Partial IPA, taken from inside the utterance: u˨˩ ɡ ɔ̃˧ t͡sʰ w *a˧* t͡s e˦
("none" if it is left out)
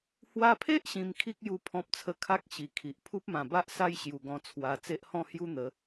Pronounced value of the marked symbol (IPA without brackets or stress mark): a˧